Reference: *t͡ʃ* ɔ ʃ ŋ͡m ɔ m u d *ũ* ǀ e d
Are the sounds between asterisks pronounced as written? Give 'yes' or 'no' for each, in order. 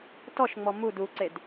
no, no

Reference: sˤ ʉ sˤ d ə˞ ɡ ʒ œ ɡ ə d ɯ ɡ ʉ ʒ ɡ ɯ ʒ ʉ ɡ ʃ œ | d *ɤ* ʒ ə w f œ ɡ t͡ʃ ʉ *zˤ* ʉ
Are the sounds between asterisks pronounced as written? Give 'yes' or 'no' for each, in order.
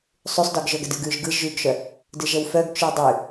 no, no

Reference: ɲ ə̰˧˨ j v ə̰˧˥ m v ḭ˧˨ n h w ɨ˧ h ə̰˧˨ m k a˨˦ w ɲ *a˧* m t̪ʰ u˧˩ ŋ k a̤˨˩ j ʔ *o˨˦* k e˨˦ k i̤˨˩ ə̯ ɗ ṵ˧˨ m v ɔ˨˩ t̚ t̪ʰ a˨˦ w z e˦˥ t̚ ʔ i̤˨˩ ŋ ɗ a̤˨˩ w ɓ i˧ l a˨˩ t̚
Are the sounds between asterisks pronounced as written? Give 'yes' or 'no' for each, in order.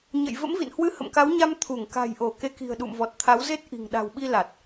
yes, no

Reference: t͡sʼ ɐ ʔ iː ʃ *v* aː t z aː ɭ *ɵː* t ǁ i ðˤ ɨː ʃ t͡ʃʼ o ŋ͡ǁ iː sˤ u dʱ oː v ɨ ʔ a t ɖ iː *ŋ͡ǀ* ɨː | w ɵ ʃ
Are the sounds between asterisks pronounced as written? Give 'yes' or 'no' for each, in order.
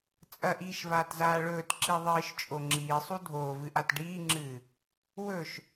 yes, yes, no

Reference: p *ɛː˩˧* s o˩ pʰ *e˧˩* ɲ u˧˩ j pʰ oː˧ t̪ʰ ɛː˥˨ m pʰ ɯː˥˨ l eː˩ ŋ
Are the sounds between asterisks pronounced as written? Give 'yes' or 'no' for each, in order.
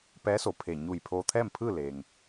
no, yes

